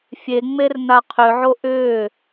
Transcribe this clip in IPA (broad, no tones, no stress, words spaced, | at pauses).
fʲeŋ͡merna qʰʏʕo ʔʏː